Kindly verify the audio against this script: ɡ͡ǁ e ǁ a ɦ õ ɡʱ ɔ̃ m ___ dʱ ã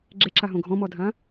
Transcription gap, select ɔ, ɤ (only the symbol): ɔ